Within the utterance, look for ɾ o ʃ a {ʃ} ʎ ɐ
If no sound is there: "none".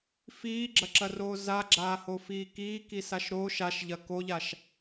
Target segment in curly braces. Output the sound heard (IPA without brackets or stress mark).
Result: ʃ